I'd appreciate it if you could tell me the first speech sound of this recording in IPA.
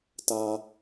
t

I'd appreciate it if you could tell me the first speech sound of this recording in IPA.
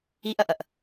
i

